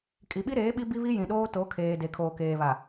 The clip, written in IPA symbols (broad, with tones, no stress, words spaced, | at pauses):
kʼi˨ɓi˦ɾeː˨˦ ɓi˦bi˦βi˦ jĩ˨ɗoː˦to˨˦ kʰeː˨ de˨kʰoː˨keː˨βa˨